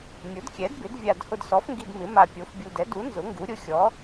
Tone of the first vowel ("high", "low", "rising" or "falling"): rising